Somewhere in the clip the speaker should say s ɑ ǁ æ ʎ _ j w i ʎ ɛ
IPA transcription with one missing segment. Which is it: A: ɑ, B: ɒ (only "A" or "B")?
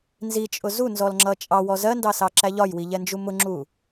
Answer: B